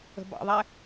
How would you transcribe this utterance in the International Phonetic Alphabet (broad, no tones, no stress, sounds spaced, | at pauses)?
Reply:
ə̤ b ɑ̰ ðˤ ɛ